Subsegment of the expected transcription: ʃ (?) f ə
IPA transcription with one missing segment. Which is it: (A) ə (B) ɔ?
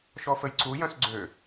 B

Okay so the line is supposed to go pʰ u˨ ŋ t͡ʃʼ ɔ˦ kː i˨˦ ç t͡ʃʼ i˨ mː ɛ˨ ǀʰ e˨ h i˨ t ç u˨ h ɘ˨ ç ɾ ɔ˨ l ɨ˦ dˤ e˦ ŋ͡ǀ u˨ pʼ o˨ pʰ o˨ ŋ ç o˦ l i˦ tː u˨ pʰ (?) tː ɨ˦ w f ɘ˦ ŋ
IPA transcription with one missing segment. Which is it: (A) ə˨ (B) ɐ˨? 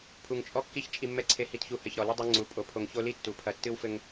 B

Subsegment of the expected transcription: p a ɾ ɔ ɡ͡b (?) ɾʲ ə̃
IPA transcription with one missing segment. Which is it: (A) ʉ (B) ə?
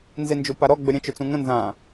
B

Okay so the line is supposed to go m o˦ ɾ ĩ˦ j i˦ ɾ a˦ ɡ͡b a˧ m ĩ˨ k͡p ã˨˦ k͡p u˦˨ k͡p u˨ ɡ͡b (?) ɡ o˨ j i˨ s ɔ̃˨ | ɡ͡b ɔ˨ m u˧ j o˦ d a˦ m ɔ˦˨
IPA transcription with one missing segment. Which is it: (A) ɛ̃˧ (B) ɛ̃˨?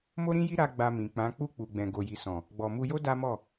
B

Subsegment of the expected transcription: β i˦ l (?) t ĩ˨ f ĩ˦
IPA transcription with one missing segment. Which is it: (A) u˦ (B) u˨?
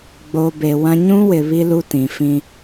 A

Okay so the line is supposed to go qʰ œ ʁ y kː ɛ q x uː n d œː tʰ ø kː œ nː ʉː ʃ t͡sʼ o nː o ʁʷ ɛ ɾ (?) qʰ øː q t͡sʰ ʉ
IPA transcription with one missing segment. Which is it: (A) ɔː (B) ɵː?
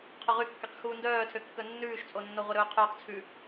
B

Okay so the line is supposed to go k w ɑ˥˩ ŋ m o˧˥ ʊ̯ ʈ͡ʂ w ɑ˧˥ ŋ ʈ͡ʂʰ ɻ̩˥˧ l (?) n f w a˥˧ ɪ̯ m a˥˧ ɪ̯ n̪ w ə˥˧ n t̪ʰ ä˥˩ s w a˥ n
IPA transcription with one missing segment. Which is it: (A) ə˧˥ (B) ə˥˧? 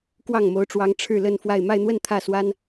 B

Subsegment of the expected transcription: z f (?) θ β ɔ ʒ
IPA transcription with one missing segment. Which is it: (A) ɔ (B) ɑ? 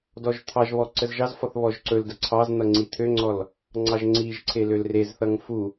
A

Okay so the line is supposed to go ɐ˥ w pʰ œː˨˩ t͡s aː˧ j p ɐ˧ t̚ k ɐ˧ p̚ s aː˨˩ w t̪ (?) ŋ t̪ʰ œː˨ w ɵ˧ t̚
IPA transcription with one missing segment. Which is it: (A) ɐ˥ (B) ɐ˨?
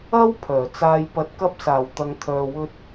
B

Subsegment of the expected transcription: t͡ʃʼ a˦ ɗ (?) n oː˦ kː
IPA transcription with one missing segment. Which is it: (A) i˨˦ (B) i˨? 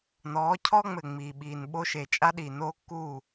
B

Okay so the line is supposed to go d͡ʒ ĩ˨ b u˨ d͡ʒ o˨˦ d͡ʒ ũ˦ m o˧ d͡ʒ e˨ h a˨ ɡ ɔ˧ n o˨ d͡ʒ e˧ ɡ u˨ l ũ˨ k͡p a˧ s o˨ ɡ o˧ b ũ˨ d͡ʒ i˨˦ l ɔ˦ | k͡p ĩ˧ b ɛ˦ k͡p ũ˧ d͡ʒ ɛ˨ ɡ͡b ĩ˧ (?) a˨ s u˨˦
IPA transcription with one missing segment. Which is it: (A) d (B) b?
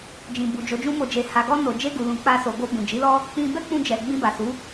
B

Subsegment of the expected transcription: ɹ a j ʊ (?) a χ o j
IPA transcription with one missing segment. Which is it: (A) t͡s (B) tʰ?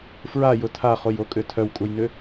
B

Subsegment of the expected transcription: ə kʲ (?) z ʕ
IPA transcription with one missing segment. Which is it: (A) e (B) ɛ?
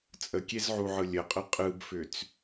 A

